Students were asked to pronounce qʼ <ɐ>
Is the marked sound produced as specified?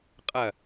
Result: yes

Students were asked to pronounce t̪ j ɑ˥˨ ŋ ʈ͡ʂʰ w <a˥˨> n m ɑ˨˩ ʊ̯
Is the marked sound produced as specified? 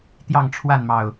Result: yes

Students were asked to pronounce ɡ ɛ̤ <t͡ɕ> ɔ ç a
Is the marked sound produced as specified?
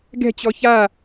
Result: yes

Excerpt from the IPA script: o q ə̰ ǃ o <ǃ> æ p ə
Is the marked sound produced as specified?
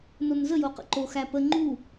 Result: no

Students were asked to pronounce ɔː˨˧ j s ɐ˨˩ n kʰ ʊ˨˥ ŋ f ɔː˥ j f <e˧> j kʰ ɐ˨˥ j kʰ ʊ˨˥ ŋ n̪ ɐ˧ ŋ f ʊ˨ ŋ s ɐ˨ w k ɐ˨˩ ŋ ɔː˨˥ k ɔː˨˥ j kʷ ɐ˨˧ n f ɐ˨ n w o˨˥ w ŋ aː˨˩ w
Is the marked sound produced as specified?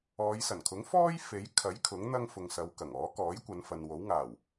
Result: no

